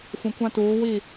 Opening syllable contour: low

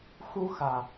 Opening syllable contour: high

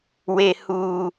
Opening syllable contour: low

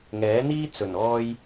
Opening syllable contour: rising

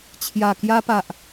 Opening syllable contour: low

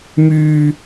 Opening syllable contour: low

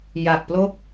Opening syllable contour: low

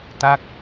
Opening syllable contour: falling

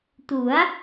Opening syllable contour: rising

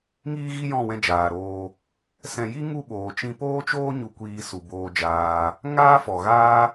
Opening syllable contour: high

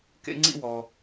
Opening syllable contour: high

